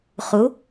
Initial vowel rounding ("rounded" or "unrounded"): rounded